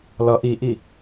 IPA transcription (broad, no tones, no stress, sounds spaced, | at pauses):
l ʌ ʔ i ʔ i